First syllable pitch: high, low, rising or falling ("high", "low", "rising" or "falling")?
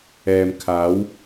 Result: low